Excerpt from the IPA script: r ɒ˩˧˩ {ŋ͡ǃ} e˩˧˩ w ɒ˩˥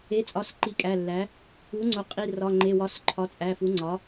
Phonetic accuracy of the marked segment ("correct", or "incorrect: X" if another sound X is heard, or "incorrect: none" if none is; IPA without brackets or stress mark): correct